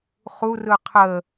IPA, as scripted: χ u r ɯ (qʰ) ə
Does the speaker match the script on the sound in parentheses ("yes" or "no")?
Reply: yes